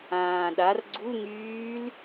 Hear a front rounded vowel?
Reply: yes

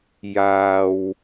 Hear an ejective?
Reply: no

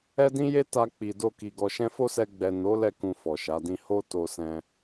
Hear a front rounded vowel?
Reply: no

